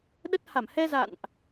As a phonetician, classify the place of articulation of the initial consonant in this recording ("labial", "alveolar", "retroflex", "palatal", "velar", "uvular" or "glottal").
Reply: alveolar